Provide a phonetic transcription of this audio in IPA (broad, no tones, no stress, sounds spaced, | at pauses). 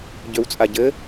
ɟ ø w t͡sʼ a ɟ ɘ